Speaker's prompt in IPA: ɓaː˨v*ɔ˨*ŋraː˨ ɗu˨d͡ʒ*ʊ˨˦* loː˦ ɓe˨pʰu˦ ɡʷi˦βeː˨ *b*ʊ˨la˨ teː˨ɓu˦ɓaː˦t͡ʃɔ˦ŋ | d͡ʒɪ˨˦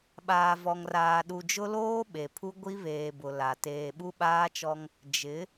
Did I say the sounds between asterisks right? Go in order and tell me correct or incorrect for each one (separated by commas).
correct, incorrect, correct